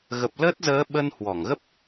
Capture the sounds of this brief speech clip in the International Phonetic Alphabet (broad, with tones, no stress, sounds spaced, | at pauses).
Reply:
ɣ ə˨˩ p̚ l əː˦˥ t̚ z əː˨˦ ɓ ə˧ n h w ɔ˧˩ ŋ ɣ ə˦˥ p̚